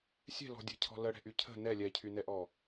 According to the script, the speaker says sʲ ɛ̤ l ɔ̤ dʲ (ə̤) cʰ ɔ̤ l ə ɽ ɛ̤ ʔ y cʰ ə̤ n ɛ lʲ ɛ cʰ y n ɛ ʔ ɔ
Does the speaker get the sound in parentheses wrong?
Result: yes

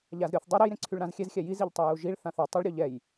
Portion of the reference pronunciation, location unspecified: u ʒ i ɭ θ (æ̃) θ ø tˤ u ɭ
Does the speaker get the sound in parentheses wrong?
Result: yes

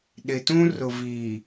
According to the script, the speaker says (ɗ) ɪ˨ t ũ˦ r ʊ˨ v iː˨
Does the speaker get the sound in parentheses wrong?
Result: no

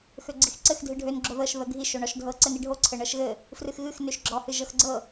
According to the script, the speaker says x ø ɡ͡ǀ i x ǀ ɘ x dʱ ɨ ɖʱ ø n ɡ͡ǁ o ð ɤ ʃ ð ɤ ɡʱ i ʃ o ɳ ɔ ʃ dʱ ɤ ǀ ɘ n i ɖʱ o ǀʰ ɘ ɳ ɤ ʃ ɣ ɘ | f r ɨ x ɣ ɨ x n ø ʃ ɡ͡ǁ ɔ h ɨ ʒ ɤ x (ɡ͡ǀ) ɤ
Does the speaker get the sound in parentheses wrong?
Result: no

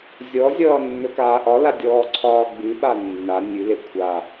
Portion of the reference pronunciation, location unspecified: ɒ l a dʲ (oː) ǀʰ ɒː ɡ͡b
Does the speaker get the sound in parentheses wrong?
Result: yes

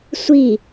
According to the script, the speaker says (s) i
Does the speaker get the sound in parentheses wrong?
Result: yes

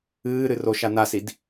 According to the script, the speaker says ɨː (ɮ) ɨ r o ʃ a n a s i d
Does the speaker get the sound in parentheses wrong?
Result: yes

